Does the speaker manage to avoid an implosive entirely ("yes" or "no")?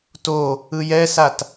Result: yes